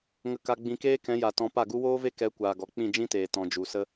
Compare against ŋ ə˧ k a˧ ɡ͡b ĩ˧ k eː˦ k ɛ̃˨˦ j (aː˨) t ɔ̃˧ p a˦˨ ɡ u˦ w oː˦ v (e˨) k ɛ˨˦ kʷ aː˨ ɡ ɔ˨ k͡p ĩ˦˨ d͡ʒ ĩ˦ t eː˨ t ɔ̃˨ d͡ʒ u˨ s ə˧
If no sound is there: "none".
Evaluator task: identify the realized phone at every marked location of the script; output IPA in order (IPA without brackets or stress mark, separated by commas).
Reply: a˨, e˦